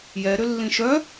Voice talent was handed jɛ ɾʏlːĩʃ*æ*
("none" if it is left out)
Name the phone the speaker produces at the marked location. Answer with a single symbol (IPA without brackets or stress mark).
œ